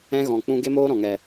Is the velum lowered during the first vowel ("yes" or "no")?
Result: yes